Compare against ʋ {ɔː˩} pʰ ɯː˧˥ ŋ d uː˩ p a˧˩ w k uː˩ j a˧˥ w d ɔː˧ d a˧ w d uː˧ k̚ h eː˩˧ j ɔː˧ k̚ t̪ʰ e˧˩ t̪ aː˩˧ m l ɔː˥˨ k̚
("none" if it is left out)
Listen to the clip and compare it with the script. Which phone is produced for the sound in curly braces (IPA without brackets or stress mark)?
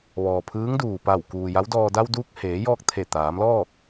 ɔː˩